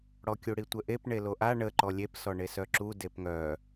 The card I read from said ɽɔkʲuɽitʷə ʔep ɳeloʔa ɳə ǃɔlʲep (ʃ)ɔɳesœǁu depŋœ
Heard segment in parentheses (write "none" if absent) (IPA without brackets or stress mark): s